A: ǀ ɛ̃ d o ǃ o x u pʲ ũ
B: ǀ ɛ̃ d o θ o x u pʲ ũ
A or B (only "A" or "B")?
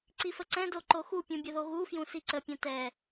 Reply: A